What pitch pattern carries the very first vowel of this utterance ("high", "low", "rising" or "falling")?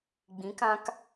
rising